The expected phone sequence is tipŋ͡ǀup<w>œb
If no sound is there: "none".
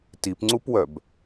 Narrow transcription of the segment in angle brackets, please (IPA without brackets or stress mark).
w